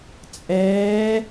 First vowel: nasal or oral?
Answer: oral